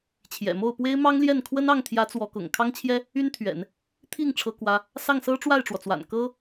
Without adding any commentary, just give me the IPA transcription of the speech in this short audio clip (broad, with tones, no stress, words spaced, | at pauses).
t͡ɕʰjɛ̰˨˩ mo˥˩ʊ̯pwe˥ɪ̯ mɑ˥ŋljɛ˥˩nkʰwə˥nɑ˥˩ŋ t̪ʰjä˧˥ t͡swɔ˧˥kʊ̰˨˩ŋ kʰɑ˥ŋt͡ɕʰjɛ˥ | y˥nt̪ʰɥɛ̰˨˩˦n | t̪ʰi˥˩ŋ ʈ͡ʂʰɤ˥kwä˥ | sɑ˥˩ŋsɤ˥ ʈ͡ʂwa˥˩ɪ̯ʈ͡ʂwɔ˩t͡swa̰˨˩n kɤ˥